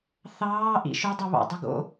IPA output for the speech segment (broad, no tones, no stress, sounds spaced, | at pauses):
θ ɑː ʔ ḭ ʃ ɵ dˤ ɵ β ɑ̰ dˤ u ɡ o̰